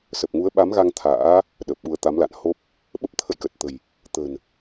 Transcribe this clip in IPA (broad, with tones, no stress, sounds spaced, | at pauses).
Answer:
s ə˨˩ p̚ ŋ u˨˦ ə̯ ɓ a˨˦ m ɣ a˧ ŋ t̪ʰ a̰ː˧˥ | ɗ əː˨˩ p̚ ɓ u˧ ə̯ t̪ a˨˦ m l a̰˧˨ n h o˦˥ p̚ | ɓ ə˦˥ p̚ t̪ʰ ə̰˧˨ j k ə˨˩ t̚ t̪ ə̤˨˩ j | t̪ ə̤˨˩ n